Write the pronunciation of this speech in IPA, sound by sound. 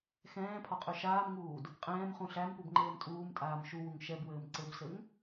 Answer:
x ɛ̃ː pʰ ɒ qʼ ø ʃ aː m ŋ uː d | qʼ ɛ̃ː m χ ũ ɬ æ m p u b ŋ͡ǃ ɘː m tʼ uː m tʼ aː m ʃ u w u ŋ ʃ ɛ b w ɘː m ǀ ɘ b s ɘ ŋ

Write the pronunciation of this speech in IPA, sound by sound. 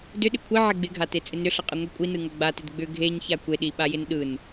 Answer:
d ʏ ɗ ɪ kʷʰ i ʕ e ɡ͡b ɪ ɡʱ a t e t͡sʼ ɪ n ʏ ɬ ɐ qʼ ɯ ŋʷ i kʷʼ i n ɯ ŋ ɐ ɡ͡b a t ɪ d ɡ͡b ʏ ɡʱ e ɲ ç a kʷ e ɗ i ɓ a j ɪ n ɗ ɯ n

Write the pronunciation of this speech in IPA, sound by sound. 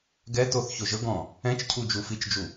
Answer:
ɡ ɛ t o θ ç o ʒ ɤ ɡ ɔ̃ | ɛ̃ t͡ʃ cʰ u d͡ʒ u f i t͡ʃ d͡ʒ u

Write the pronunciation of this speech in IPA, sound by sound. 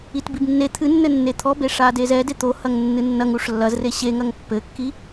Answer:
i t b i b nː e t̪ʰ ɨ nː ɘ nː e t̪ʰ ɔ b e ʂ a d e z ɛ d e t̪ o h ɐ ŋ nː ɨ nː ɐ ŋ u ʂ lː ɐ z r e ɕ e ŋ ɐ ŋ pː ɘ kː i

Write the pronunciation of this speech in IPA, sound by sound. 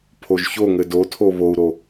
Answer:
pʰ o ʒ ç o ŋ ɘ d o tʰ o β o u̯ ɾ o

